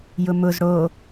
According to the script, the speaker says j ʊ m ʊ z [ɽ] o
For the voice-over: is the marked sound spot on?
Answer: yes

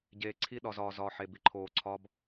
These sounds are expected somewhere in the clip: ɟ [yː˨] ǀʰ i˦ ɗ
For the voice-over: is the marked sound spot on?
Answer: no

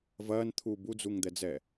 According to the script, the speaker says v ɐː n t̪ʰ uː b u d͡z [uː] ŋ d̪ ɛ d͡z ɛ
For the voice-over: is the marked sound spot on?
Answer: no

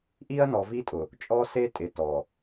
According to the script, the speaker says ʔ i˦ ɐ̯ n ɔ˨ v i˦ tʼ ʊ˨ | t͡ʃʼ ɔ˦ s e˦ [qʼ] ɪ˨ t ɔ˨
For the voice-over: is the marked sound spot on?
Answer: no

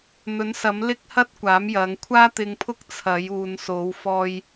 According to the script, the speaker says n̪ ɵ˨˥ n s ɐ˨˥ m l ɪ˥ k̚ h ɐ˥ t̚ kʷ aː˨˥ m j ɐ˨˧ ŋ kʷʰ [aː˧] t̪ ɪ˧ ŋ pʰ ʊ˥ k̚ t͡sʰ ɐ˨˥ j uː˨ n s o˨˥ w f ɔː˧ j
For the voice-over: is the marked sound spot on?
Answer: no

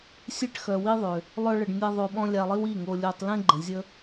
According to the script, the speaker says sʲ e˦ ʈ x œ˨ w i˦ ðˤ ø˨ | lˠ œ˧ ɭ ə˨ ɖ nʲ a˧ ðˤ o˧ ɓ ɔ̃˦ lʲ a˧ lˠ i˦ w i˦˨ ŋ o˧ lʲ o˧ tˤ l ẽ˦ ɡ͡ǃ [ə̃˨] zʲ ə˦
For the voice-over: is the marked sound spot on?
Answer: yes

